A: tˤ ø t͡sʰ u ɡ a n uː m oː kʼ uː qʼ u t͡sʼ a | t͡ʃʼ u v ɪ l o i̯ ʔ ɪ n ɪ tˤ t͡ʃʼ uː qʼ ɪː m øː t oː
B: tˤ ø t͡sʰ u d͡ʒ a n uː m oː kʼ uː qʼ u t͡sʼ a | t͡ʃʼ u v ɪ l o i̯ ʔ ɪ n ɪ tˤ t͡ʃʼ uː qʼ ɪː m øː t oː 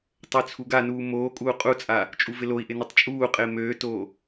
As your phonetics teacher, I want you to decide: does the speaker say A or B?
A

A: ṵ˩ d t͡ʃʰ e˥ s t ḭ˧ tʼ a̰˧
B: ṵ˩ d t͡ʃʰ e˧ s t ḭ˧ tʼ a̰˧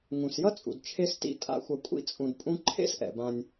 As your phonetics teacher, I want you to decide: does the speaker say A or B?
B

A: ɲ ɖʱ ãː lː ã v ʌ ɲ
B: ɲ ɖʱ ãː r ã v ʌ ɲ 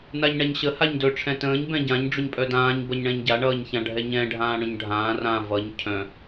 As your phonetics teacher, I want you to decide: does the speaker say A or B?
B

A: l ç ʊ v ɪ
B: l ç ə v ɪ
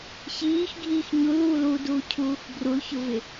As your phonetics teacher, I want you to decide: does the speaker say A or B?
A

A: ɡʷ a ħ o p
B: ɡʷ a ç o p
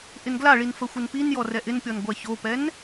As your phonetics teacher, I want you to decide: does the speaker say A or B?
B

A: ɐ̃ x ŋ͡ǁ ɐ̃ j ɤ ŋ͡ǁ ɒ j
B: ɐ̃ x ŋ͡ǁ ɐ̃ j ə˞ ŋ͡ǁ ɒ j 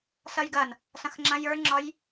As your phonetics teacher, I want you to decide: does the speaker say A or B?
B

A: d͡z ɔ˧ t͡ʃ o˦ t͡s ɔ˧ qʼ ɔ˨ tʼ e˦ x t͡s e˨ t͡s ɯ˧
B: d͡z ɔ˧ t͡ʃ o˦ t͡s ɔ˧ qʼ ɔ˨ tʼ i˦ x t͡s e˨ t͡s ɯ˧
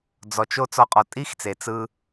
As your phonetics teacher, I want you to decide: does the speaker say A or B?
B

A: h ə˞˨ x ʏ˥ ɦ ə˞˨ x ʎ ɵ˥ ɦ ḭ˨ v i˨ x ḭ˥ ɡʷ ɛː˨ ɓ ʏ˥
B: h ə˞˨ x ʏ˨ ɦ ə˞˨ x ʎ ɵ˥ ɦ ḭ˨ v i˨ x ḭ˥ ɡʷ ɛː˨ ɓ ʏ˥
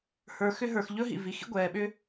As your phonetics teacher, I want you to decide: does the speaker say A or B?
A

